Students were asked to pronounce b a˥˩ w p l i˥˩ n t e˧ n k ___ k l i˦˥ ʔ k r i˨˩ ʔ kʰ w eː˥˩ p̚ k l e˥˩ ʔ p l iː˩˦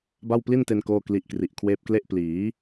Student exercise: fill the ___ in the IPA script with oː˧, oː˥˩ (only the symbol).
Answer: oː˥˩